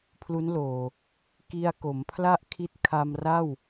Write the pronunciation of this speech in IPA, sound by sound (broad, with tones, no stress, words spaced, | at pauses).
pʰlu˦˥nloː˨˩ | ki˧a̯ko˩˦mpʰla˥˩ʔ kʰi˦˥t̚kʰa˧mra˥˩w